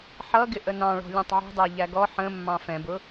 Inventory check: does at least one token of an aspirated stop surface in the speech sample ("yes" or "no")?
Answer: no